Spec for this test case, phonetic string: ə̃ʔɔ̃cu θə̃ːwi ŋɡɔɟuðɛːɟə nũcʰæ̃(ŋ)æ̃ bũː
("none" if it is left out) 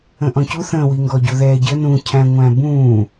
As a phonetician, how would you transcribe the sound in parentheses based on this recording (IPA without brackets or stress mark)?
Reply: ŋʷ